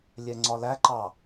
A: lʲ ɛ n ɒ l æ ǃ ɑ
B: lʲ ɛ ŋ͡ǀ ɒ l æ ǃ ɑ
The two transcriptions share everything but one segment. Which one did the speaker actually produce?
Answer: B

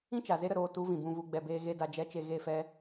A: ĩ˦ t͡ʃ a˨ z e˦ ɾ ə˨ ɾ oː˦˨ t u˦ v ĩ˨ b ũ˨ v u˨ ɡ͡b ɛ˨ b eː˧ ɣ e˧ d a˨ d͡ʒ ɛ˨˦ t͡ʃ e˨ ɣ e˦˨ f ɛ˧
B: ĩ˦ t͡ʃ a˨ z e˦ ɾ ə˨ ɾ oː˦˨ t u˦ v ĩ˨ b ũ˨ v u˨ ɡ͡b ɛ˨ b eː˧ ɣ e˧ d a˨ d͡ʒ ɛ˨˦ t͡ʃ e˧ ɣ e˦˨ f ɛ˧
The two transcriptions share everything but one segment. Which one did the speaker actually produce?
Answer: A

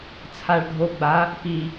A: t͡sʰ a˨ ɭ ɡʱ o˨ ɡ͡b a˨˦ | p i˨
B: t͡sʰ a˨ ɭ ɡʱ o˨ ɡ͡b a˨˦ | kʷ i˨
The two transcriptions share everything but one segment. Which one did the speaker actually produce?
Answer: A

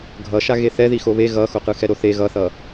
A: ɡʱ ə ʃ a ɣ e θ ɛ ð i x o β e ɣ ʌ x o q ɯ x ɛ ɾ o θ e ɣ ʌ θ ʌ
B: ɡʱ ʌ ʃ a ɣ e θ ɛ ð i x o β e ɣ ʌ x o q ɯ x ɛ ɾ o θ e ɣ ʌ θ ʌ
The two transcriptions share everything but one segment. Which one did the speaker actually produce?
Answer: B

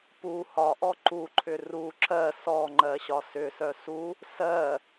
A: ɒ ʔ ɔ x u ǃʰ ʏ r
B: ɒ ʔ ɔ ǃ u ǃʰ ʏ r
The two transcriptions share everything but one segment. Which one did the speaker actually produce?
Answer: B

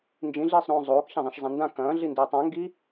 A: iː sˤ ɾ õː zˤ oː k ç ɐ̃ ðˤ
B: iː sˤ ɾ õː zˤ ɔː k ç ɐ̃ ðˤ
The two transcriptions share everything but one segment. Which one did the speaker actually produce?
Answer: A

